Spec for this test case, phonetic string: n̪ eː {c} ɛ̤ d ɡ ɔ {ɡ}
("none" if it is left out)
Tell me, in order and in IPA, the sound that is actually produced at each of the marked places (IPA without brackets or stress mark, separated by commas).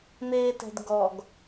t, ɡ